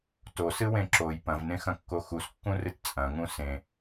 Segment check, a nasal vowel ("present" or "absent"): present